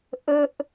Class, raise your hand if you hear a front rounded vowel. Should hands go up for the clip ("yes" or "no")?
no